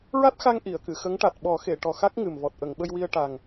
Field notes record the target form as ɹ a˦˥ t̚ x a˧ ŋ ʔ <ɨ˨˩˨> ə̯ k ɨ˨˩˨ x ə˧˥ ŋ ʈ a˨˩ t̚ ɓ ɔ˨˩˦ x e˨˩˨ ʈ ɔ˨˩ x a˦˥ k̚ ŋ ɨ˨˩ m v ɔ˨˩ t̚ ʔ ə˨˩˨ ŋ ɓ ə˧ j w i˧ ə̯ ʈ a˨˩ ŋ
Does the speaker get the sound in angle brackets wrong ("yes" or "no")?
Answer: yes